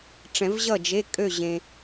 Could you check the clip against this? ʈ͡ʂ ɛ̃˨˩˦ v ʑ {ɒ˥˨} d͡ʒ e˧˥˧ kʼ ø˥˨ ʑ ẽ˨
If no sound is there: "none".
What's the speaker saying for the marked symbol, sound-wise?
ʌ˥˨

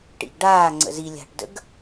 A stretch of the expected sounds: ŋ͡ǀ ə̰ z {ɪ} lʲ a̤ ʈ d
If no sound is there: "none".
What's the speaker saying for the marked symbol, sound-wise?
i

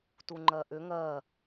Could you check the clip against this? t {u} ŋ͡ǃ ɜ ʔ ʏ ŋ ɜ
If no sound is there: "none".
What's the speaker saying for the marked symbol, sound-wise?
u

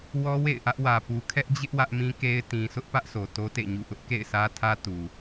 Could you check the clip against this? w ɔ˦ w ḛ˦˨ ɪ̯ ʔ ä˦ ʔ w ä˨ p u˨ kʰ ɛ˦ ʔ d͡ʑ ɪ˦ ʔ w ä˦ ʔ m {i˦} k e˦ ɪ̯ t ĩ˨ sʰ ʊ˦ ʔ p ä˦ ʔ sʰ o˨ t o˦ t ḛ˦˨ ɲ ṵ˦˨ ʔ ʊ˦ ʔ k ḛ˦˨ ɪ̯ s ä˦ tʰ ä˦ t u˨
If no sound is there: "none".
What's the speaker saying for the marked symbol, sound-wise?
ĩ˦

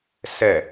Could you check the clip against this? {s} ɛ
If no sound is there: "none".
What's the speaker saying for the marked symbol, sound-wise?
s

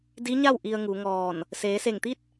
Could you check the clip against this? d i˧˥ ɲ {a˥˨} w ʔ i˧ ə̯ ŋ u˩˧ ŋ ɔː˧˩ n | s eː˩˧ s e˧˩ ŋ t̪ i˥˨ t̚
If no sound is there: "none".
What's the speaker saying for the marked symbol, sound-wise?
a˥˨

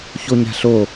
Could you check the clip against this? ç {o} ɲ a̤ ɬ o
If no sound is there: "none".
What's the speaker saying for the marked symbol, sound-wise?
o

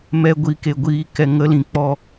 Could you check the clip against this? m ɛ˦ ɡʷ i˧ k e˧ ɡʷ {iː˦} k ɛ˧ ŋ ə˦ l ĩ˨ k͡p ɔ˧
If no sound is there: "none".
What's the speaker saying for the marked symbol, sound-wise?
iː˧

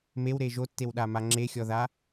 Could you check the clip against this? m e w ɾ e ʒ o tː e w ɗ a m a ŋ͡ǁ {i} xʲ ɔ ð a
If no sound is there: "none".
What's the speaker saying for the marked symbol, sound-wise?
e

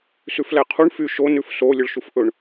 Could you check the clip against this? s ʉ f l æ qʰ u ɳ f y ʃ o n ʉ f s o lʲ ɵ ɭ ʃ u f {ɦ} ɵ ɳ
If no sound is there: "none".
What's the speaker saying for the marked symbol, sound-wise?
ʔ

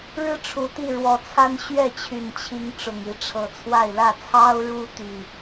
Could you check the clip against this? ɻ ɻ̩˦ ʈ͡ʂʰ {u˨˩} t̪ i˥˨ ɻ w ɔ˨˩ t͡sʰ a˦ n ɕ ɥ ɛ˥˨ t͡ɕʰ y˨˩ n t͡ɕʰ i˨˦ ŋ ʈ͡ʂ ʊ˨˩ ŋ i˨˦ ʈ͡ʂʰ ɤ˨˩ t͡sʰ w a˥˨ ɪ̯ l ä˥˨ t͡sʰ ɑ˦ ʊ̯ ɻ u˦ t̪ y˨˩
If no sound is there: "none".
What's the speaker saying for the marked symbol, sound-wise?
u˨˩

